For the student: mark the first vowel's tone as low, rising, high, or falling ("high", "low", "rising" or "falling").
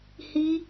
high